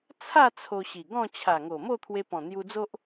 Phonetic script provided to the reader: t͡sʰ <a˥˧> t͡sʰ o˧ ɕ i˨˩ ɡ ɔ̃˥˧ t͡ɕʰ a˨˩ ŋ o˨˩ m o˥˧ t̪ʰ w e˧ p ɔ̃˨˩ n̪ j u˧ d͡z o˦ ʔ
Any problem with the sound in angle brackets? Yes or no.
no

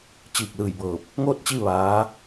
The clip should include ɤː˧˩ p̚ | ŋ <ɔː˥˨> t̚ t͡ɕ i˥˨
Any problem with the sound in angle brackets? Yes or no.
yes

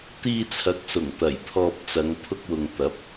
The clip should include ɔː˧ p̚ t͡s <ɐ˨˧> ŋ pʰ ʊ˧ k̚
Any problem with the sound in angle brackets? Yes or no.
no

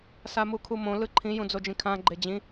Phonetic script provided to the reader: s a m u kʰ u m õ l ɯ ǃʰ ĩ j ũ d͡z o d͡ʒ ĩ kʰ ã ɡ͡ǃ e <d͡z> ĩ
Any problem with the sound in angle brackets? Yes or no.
yes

